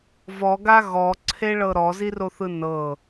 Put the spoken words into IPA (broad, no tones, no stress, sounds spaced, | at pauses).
v ɔ ɡ a ɣ ɔ ǀʰ e ɭ ɤ ɾ ɔ z i r o θ ɯ n ɤ